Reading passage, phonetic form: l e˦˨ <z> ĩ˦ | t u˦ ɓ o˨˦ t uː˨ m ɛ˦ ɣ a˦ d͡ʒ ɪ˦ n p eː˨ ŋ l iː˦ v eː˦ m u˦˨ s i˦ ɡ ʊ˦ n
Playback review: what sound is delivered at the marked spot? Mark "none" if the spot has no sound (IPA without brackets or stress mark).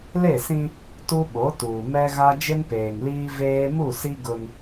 s